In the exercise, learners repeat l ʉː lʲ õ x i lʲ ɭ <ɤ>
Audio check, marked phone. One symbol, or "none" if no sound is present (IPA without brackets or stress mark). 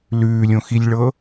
ɤ